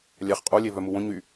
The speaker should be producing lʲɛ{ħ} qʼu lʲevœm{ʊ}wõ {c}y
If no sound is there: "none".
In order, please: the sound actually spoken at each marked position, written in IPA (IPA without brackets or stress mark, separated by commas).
χ, u, ɲ